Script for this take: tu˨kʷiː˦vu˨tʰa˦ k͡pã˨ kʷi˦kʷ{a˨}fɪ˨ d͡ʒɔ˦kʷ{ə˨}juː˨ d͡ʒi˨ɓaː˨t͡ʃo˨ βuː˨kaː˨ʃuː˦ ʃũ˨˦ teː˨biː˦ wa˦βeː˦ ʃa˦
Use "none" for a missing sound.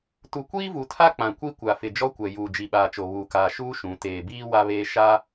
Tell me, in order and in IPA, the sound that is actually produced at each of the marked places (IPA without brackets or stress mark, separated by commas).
a˨, ɛ˨